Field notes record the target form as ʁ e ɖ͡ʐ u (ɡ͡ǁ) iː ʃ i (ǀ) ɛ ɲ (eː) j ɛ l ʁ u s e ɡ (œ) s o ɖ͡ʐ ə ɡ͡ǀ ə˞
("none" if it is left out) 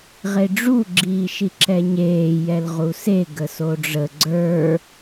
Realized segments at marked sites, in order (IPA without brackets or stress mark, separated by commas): ɡ͡ǁ, ǁ, eː, ə